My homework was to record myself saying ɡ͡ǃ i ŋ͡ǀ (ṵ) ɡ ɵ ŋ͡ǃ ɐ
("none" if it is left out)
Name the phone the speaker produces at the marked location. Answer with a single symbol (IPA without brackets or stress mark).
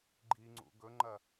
ṵ